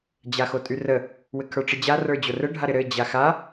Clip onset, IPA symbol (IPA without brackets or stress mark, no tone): d͡ʑ